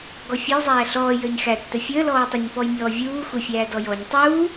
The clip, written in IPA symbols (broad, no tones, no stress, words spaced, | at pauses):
ɡɔfʲɔj zˤæːɬɔː jəːɲxætːə fʲəː lɔːtˤəɲpɔj mʲɔːvʲuː xʷəfʲæː dɔjɔɲ tˤuː